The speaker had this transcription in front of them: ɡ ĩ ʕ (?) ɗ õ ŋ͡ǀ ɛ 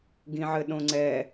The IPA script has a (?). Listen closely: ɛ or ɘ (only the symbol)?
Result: ɘ